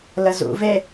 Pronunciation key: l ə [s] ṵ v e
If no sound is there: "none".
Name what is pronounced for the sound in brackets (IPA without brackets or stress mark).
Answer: z